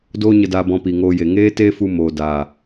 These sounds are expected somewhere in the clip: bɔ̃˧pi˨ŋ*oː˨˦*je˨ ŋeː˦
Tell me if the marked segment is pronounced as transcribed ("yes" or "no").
no